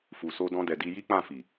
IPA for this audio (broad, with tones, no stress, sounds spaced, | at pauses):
f u˨ s o˧ d ɔ̃˧ d ɛ˨ d i˧ j i˦ k͡p ã˦˨ f i˨